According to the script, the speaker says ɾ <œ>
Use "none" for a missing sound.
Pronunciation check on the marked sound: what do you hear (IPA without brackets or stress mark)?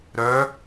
œ